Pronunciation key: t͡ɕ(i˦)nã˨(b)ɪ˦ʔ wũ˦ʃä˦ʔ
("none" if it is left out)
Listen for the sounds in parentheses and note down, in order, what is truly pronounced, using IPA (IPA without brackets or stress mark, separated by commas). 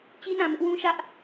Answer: i˦, m